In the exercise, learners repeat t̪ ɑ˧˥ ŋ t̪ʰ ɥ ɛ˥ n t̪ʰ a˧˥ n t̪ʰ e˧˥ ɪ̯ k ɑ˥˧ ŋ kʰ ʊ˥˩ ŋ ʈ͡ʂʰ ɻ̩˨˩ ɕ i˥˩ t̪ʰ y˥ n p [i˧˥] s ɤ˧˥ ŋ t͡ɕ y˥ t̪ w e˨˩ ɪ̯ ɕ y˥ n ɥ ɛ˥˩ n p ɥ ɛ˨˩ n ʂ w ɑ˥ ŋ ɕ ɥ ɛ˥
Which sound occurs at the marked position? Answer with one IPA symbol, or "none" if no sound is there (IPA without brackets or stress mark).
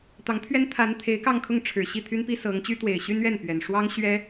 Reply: i˥